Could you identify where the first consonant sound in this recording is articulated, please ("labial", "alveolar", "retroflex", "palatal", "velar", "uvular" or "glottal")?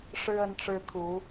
retroflex